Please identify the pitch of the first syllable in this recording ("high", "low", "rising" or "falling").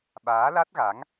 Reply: rising